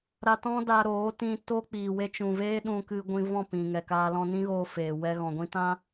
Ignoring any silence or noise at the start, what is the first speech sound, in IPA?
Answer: ɾ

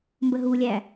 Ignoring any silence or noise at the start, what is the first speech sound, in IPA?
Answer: m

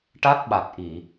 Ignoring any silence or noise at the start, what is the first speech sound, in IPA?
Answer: ʈ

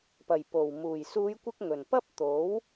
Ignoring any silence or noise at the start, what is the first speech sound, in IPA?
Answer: p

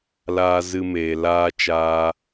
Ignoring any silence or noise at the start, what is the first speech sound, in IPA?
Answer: l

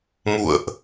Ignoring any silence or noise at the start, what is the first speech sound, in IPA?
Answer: m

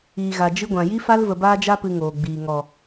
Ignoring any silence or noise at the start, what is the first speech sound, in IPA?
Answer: iː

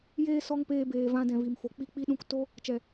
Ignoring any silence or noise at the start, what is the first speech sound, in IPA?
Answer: j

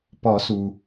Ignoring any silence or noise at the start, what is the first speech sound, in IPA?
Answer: p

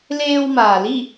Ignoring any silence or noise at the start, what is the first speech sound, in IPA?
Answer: l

